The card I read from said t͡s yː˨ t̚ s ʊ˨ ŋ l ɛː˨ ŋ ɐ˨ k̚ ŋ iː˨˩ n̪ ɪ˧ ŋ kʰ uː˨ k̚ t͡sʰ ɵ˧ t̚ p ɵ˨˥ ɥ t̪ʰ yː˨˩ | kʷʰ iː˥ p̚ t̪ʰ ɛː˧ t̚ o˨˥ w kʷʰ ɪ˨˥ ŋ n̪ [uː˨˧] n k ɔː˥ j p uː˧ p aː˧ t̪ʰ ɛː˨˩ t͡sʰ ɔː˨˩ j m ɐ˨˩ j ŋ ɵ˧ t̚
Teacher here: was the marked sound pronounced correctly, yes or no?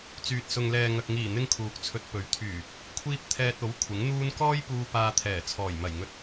no